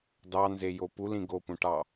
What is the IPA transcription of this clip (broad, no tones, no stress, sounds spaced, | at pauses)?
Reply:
d ɑ n z e j o p u l ĩ ɡ o p ũ ʈ ɑ